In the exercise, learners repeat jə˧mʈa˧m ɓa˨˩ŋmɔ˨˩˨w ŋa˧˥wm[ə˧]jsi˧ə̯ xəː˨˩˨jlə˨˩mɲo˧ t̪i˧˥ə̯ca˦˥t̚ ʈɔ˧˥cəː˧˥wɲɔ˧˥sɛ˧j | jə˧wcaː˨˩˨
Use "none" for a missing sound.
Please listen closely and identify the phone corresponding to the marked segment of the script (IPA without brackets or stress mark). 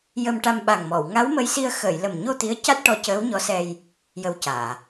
ə˧